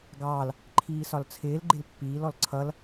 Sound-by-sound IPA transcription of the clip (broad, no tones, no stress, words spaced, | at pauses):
ɡɑːl | ǃʰiːsɒlt͡sʰɪːl ɡ͡ǃɪlpːiːl ɔlǀʰʌl